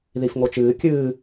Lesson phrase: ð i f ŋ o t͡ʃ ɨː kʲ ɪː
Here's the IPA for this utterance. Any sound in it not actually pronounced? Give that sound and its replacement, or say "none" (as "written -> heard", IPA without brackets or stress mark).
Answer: ɪː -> ɨː